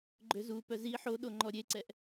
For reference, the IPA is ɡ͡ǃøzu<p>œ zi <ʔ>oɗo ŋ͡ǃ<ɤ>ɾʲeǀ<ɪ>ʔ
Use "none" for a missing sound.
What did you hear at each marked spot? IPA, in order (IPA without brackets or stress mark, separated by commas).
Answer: p, ħ, ɔ, ɛ